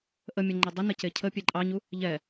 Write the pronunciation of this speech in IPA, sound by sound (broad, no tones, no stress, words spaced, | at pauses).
ʔəmʲəŋ͡ǃe dˤənə cecʰə pʲeǃʼɑɲu | ʎɛ